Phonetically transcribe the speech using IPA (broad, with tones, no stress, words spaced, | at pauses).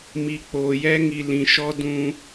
mi˨k͡poː˨jɛ˦ ŋi˨lĩ˨ʃɔ˦ dũ˦